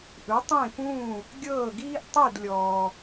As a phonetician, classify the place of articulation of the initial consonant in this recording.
glottal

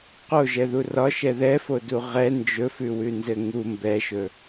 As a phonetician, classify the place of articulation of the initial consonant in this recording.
uvular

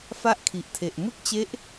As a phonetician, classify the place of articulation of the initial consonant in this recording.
labial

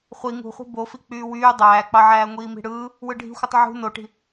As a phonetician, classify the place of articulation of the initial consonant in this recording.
uvular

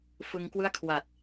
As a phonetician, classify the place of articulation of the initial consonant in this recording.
labial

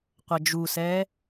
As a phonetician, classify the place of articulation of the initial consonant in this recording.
uvular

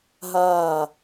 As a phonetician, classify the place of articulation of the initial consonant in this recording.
glottal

